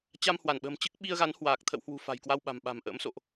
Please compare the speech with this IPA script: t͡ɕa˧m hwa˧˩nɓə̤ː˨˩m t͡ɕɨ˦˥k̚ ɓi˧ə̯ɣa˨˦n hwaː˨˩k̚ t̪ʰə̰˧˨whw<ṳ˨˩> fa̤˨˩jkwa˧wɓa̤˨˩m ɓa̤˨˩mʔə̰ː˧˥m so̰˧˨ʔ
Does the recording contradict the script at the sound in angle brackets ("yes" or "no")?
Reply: no